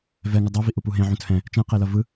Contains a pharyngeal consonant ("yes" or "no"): yes